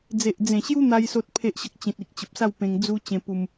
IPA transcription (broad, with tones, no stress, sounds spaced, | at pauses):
d͡z e˨ ʔ d͡z ẽ˨˩ ɕ j u˦ n̪ a˧ j s o˦ t̚ pʰ e˦ ʔ ɕ ə˦ k̚ t͡ɕ ĩ˨ t̚ i˨ k̚ t͡ɕ ə˨ p̚ s a˥˧ w p ẽ˧ ŋ d͡z u˦ t͡ɕ ẽ˧ p u˧ m